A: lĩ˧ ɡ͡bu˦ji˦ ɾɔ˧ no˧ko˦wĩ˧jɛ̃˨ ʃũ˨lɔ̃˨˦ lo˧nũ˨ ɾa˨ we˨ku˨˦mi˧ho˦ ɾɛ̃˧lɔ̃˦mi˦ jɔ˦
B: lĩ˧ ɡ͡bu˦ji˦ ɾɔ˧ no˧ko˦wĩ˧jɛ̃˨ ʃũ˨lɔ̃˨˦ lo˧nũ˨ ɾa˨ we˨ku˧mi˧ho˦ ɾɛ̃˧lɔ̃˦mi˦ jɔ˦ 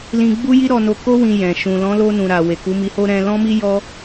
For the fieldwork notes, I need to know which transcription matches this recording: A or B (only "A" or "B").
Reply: A